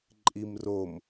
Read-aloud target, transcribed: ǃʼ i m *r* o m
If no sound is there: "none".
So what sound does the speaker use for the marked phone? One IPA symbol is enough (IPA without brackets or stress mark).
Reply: r